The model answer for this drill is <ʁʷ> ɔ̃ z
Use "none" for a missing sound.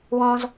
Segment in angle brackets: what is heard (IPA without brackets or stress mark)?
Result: w